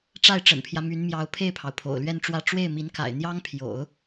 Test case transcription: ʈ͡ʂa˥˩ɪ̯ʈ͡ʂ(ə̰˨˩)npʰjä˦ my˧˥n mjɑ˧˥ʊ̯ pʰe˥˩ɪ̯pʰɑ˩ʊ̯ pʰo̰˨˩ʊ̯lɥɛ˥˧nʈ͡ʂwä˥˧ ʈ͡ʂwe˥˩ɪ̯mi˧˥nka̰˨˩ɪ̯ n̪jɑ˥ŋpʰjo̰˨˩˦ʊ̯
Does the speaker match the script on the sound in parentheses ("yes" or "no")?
yes